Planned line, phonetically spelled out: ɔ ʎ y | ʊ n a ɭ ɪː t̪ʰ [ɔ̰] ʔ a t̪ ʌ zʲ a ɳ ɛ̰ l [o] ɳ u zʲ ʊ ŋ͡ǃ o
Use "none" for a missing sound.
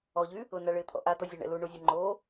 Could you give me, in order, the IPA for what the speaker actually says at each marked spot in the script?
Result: ɔ̰, u

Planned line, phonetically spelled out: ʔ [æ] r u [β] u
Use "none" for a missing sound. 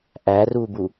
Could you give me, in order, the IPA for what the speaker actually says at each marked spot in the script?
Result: æ, b

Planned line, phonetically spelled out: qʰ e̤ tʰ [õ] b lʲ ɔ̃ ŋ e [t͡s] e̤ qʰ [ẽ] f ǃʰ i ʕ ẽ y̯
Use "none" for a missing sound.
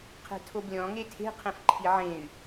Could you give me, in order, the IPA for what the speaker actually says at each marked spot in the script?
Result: o, tʰ, ẽ

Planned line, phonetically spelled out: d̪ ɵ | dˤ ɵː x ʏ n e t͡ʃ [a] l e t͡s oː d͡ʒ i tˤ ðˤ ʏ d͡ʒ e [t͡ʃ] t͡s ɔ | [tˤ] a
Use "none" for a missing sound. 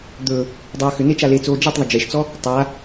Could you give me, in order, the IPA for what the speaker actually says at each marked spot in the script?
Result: a, ʃ, tˤ

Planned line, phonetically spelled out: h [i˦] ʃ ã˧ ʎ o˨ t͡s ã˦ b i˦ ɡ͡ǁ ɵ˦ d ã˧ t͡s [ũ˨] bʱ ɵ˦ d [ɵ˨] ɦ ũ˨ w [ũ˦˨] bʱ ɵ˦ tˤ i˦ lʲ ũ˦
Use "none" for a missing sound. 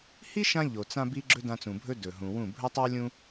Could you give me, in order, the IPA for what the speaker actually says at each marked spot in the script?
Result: i˦, ũ˨, ɵ˨, ũ˦˨

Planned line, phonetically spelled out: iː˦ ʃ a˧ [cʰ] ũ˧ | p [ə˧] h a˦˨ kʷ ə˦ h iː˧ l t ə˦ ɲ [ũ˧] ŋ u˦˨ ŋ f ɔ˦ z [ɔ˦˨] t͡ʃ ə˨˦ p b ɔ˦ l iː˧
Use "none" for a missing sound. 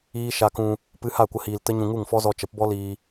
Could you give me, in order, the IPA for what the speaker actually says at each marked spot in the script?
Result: k, ɨ˧, ũ˧, ɔ˧

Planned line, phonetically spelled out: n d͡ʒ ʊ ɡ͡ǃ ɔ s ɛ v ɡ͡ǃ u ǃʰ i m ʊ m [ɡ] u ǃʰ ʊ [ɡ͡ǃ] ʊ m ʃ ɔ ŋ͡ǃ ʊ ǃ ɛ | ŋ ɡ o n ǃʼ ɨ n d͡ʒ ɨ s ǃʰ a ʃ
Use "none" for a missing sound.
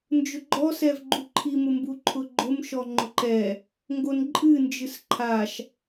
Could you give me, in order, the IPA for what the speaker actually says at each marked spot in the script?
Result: b, ɡ͡ǃ

